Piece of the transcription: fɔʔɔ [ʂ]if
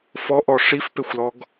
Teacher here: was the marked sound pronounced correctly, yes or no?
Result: yes